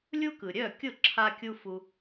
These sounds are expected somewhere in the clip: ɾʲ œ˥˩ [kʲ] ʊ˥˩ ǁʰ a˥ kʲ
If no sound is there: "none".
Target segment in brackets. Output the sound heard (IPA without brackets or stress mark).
kʲ